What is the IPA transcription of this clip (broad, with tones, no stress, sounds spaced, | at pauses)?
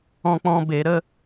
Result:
ɔ̃˦ k͡p ɔ̃˦ b e˨˦ ɾ ə˦